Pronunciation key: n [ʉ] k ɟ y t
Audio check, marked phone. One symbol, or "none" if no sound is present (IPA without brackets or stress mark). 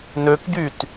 ø